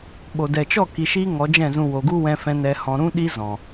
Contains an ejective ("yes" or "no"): no